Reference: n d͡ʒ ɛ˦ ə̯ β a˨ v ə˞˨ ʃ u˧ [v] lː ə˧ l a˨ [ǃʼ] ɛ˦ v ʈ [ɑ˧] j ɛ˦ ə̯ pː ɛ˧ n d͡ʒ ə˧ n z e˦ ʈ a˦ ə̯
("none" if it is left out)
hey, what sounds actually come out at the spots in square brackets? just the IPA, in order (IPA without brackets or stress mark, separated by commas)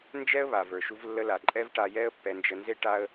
v, ǃʼ, a˧